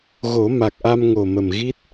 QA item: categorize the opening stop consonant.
plain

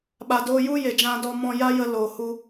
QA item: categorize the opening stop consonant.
implosive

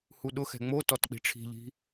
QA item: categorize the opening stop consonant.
implosive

